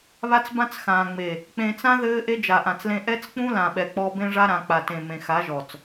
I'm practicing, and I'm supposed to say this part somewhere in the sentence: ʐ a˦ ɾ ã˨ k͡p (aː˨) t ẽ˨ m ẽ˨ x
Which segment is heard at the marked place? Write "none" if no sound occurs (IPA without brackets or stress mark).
a˨